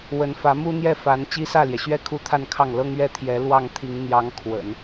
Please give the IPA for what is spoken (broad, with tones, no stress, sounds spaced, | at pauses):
w ə˧˥ n f ä˧˥ m u˥ n̪ j ɛ˥˩ f a˧˥ n t͡ɕ i˥ s ä˥˩ l j ɛ˩ ɕ ɥ ɛ˥˧ kʰ u˥˧ t̪ʰ a˥˧ n kʰ ɑ˥˩ ŋ l ɤ˥ ŋ ɥ ɛ˥˩ t̪ʰ j ɛ˧˥ l w ɑ˥˩ ŋ t̪ʰ i˧˥ ŋ n̪ j ɑ˧˥ ŋ kʰ w ə̰˨˩˦ n